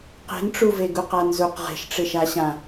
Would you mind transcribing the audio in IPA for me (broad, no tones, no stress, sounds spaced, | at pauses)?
q e̤ n ʈ͡ʂ u v e ɡ u q a n z u q ʁ e̤ ʃ ʈ͡ʂ ɪ ʃ a ɕ ã